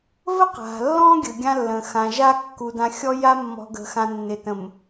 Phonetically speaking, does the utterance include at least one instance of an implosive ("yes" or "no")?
no